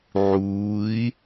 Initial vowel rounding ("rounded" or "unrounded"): rounded